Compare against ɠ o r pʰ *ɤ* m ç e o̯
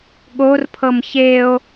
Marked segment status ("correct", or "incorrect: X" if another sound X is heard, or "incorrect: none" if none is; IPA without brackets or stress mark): correct